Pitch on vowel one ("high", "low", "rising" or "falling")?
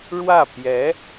falling